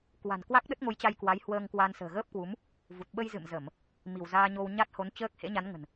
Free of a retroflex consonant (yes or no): yes